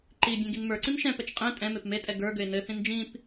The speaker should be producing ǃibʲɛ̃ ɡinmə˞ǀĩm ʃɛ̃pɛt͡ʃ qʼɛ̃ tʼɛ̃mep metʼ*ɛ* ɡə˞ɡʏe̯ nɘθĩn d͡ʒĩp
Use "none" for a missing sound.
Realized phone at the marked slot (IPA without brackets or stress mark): ɛ